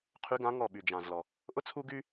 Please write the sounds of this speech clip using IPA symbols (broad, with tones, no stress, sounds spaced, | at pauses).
qʰ y˧˥ ɡ ã˧˥ ŋ ɔ˦˨ ɓ y˨ d͡ʒ ã˨ z l ɔ˨ | ʔ ʊ˥ t͡sʰ u˥ ɡ y˥